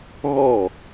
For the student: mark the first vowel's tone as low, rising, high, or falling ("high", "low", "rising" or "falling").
falling